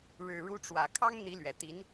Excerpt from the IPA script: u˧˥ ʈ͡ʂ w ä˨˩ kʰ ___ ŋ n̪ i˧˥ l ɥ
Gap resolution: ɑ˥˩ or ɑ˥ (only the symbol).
ɑ˥